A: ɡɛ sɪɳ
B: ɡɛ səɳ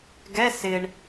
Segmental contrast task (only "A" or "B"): A